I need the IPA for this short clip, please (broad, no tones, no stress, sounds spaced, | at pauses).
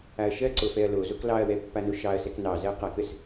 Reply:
a ɐ̯ ʃ ɜ ǀ o f ɛ ɐ̯ l o z o k l ɑ ɐ̯ w ɛ pː a n o ʃ ɑ ɐ̯ s ɛ k n ɑ z ɜ q a k ə s